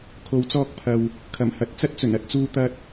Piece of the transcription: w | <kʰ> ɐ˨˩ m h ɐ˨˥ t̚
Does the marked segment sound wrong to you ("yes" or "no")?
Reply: no